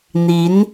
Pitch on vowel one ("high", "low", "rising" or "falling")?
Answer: rising